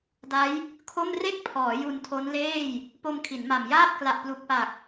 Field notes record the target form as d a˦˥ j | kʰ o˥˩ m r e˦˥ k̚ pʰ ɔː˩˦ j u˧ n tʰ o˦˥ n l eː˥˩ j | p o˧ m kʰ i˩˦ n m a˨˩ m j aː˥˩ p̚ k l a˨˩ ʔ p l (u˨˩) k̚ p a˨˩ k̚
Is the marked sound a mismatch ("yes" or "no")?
no